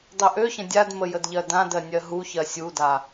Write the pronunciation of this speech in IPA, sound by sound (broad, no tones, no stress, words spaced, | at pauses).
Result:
dˤøʔøçə̃ dʲadmə jədʎɜdãdɜ nʲɜɦuçɜ sʲuda